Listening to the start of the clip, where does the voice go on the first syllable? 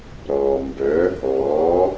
low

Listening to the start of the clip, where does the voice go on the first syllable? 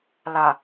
low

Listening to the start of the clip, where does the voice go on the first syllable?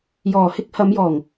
low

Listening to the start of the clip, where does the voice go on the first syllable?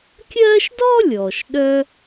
high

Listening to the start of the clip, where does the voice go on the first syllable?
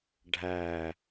low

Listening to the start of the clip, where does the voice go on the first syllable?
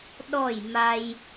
falling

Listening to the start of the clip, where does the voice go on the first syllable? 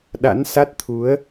rising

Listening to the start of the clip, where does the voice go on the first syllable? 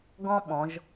high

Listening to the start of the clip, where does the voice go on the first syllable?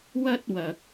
high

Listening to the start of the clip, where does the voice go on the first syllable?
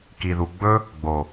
low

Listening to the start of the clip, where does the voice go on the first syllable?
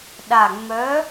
low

